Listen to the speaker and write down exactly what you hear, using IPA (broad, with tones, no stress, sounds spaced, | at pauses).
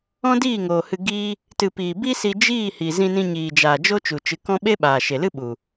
ɔ̃˦ d iː˦˨ ŋ oː˨ h ɨ˧ ɡ iː˦ | t ɨ˨ p iː˨ b i˦ s i˧ d͡ʒ iː˦˨ h iː˨ z ĩ˧ n ĩ˧ ɲ iː˨ d͡ʒ aː˨ d͡ʒ o˦ t͡ʃ u˨ t͡ʃ ɨ˨˦ k ɔ̃˦ ɓ e˦ ɓ aː˨ ʃ e˨ l ɨ˦ ɓ u˨